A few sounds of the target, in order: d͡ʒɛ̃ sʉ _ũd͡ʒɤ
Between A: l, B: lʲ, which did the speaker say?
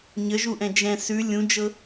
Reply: B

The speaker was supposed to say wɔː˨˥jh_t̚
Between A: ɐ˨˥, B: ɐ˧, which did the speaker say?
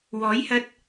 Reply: B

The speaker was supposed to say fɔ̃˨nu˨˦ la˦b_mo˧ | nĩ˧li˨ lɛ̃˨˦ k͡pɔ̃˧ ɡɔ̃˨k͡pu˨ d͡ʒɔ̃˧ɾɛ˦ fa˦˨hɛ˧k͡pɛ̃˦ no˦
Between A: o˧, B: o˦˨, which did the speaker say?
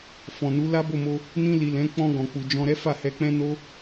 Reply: B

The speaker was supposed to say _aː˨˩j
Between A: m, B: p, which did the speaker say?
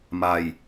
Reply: A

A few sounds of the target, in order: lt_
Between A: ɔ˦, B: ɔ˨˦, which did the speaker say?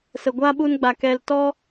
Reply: A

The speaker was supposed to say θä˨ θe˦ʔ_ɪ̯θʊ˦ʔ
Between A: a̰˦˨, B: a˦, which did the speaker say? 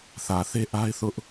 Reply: B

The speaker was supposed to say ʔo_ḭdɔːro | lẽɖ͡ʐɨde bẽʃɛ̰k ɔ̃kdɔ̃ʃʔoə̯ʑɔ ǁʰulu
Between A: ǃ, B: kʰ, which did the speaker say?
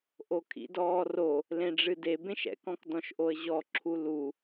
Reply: B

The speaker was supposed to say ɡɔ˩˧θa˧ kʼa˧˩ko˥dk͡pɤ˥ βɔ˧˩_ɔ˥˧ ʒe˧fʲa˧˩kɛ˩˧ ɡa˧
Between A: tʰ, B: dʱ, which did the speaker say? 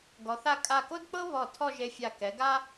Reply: A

